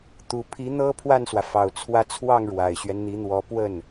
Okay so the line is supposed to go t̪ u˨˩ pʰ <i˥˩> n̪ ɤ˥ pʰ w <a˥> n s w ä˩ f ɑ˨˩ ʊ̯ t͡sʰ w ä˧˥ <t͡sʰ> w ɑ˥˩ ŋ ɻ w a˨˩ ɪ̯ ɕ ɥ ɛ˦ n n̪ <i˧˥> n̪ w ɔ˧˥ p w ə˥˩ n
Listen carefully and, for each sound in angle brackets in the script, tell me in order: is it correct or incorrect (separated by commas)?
incorrect, incorrect, correct, correct